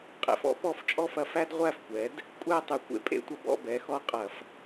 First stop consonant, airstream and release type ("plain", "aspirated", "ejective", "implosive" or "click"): ejective